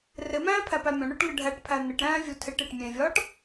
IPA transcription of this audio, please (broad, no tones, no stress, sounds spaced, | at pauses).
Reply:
r ɪ m æ̃ː pʰ æ p æ mʲ õ ɳ o ʈ ŋ ɘ ɖʱ æ ʈ pʰ æ n̪ ɪ ʈ ɾ æ̃ː vʲ u tʰ ɪ ʈ e ʈ mʲ ẽ vʲ ɒː ʈ